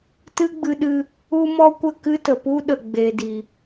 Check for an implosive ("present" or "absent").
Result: present